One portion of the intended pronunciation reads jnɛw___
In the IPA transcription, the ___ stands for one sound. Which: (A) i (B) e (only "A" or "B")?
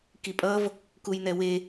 B